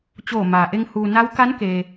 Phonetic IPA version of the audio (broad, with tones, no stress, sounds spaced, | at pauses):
t͡ɕ oː˧˩ m aː˩ ʔ e˧ ŋ h uː˩ n a˧˥ w k a˧˥ n k e˩